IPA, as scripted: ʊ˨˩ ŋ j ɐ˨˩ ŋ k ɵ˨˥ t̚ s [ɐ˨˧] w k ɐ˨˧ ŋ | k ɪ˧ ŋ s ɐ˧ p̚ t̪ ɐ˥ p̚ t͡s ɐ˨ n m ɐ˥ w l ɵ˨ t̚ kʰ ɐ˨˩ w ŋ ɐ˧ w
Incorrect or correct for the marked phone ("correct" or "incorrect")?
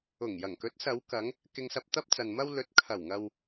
correct